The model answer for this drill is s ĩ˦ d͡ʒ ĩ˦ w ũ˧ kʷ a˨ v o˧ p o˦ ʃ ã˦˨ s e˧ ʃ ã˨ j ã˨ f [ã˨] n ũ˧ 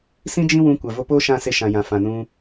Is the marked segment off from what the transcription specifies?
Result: no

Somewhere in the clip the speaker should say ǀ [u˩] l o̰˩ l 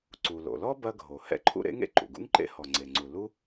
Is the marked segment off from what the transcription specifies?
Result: no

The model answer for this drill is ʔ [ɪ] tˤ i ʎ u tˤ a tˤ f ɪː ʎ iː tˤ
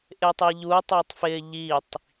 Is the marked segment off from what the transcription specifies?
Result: no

